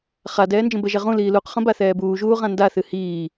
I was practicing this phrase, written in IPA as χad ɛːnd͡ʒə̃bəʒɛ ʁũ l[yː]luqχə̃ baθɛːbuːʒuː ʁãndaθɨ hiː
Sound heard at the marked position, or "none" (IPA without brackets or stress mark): iː